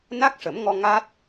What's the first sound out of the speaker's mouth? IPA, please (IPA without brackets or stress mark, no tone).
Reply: n